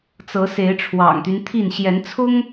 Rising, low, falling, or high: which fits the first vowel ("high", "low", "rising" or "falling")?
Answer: rising